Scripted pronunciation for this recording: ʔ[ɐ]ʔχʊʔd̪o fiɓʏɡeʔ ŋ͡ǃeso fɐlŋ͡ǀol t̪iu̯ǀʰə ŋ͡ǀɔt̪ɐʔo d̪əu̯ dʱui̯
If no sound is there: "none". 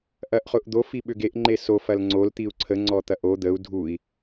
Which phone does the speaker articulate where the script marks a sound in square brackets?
ɐ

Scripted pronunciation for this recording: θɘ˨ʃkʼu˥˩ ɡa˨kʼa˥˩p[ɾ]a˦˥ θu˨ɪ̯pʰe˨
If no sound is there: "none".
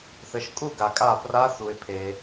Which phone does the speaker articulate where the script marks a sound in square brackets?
r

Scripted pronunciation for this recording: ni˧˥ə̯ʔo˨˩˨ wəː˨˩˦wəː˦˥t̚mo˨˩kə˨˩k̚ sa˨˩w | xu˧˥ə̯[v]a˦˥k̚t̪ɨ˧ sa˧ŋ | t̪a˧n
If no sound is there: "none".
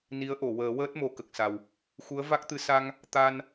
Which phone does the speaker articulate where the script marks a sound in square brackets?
v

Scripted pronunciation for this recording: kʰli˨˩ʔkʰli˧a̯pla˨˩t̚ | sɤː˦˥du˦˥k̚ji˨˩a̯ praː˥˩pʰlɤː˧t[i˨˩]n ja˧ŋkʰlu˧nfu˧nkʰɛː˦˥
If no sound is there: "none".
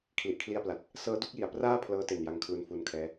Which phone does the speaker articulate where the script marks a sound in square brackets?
e˨˩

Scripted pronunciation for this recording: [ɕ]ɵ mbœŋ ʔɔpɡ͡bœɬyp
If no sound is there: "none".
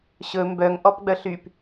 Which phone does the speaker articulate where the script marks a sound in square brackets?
ɕ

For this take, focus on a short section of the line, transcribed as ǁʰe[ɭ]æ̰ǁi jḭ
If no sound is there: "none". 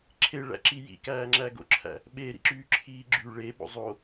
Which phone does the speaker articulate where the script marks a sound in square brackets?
ɭ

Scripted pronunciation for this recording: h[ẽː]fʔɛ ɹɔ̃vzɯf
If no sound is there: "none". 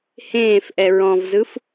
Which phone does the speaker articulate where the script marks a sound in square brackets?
ẽː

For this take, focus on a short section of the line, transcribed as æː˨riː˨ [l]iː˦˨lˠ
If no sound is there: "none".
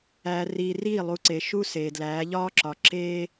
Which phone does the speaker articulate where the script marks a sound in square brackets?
r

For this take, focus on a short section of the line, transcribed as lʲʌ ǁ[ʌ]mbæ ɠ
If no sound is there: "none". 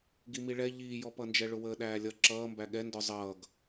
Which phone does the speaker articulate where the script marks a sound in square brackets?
ʌː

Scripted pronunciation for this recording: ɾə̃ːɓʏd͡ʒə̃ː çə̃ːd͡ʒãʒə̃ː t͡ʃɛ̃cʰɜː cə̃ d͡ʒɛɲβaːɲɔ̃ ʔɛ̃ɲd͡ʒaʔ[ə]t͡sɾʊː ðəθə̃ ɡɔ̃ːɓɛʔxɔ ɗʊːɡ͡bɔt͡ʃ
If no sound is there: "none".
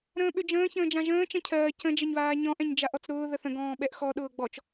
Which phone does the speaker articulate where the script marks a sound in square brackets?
ɔ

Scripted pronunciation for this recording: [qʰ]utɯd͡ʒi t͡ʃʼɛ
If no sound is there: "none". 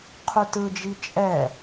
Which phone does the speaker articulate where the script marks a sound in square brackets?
qʰ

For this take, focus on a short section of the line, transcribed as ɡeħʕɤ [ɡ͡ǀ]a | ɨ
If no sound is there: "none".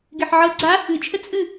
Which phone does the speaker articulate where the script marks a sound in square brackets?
ɡ͡ǀ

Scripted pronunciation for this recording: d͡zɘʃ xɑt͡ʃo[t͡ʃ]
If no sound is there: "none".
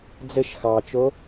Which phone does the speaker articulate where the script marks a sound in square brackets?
none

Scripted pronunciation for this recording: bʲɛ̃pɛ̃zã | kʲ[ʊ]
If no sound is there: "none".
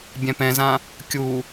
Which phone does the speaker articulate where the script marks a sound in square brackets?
u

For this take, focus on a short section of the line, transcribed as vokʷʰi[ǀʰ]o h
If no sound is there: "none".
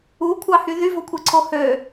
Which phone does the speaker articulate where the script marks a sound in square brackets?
ǀʰ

